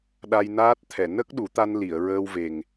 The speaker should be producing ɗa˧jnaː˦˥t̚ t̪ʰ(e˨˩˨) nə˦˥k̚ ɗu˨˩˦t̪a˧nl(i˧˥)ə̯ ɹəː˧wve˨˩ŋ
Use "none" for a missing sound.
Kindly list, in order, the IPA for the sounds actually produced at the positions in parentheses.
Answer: ɛ˨˩˨, i˨˩˨

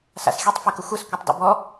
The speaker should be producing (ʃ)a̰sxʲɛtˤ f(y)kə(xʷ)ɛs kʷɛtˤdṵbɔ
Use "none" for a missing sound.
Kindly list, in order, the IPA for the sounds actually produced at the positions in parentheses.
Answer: s, e, xʷ

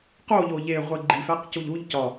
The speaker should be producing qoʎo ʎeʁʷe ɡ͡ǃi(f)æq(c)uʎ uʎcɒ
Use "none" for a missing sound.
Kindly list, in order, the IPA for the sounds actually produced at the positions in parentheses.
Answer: f, c

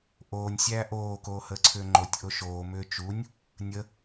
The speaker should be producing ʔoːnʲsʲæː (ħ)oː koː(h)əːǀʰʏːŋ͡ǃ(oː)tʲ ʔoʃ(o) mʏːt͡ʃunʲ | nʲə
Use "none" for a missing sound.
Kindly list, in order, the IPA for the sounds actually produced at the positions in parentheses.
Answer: ʔ, h, o, oː

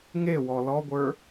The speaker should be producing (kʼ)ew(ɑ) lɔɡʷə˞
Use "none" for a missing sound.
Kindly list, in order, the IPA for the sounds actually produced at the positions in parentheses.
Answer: ŋ, ɔ

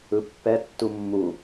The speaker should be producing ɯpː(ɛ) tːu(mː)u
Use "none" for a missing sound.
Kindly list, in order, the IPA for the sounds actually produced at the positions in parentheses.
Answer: ɛ, mː

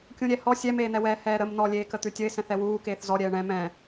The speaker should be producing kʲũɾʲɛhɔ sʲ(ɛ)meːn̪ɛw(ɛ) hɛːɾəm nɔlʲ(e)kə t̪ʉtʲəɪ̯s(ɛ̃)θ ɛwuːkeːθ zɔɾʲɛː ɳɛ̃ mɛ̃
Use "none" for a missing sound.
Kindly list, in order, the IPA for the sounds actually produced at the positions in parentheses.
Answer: ɛ, ɛː, eː, ɛ̃

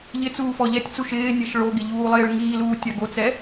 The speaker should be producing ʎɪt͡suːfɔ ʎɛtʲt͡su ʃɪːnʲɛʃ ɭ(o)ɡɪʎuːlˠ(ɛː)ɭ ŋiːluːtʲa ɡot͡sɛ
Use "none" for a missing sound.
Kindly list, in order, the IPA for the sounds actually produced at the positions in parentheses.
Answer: o, ɪː

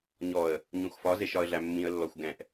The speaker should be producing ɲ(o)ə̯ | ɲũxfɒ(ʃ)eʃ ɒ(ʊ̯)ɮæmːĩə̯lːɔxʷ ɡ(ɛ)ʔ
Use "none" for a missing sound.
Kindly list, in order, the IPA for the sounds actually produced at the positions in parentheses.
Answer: ɔ, z, ə̯, ɛ̃

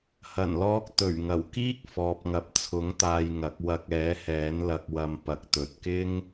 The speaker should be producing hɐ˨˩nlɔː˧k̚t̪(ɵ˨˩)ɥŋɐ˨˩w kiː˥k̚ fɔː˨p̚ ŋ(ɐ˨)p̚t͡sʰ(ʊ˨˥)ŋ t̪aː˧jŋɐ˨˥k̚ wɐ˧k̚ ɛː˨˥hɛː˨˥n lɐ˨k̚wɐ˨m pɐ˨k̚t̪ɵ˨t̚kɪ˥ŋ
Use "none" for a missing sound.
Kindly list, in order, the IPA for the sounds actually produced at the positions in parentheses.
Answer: ɵ˨˩, ɐ˨, ʊ˨˥

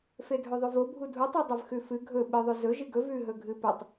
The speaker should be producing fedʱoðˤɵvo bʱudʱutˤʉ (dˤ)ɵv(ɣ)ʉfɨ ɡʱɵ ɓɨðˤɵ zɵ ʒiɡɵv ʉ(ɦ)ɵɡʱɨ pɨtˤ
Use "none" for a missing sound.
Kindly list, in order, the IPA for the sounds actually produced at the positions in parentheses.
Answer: dˤ, x, ɦ

